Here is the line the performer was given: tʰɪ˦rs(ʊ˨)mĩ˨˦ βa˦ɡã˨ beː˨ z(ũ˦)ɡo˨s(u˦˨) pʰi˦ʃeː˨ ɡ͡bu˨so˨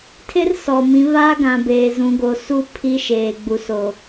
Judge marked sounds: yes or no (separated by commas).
no, no, no